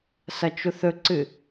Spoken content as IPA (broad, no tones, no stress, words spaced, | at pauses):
sɐt͡ʃuθɵǀɨ